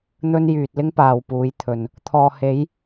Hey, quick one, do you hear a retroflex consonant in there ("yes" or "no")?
no